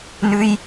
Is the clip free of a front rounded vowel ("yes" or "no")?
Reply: yes